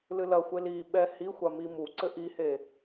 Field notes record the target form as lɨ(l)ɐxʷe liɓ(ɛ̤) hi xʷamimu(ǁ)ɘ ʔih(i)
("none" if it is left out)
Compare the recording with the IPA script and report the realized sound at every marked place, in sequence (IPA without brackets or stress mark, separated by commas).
l, ɛ, ǀ, e